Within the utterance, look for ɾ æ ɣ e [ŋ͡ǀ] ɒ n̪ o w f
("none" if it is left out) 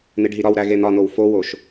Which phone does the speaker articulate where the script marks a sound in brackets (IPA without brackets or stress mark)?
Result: n̪